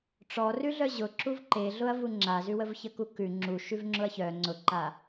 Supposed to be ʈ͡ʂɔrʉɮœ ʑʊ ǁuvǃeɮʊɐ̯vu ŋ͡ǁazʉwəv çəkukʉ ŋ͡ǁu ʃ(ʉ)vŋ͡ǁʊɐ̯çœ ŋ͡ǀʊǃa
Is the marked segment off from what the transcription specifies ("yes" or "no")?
no